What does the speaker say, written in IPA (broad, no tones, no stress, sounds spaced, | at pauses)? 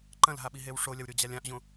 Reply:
ǃ ɐ̃ l ɦ a ɓ i ɦ e w ʂ o lʲ ɐ w ɾʲ o d͡ʑ a lʲ ã ʔ ʑ õ